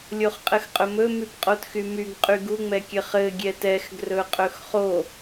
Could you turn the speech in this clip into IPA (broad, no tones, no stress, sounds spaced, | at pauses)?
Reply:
lʲ o χ qʼ ɘ x qʼ ɵ m ɵ m y p qʼ o t x y m y ɡ qʼ y ɡ u ŋ͡m ɛ kʲ ɘ χ ɘ ɡʲ ɛ t ɛ x ɡ r ɵ qʼ ɵ x χ o